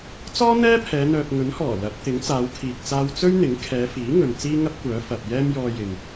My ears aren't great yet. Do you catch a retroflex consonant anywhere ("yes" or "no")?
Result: no